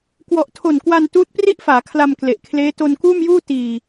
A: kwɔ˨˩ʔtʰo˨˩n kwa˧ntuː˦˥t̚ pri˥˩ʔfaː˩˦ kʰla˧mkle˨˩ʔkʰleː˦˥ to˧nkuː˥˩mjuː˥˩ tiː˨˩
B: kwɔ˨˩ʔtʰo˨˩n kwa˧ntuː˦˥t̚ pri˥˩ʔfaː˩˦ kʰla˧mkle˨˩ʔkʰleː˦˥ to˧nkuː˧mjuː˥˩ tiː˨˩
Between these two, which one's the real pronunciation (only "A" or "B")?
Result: A